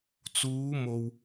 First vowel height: high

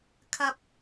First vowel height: low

